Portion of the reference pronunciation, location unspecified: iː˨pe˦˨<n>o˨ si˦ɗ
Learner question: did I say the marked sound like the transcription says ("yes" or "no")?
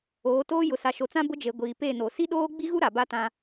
yes